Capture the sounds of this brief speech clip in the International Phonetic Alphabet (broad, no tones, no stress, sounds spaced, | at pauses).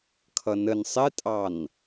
kʰ ʌ n ə n sˤ ɪ tʼ ɑ n